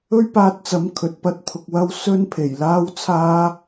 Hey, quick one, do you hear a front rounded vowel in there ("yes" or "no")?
no